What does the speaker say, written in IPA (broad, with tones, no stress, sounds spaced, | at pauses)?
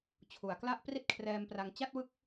t͡ɕʰ u˩˦ a̯ k l a˥˩ ʔ p r i˥˩ t̚ kʰ r ɛː˧ m p r a˧ ŋ t͡ɕ a˥˩ t̚ w ɯ˦˥ k̚